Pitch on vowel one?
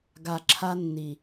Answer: low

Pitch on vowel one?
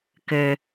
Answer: low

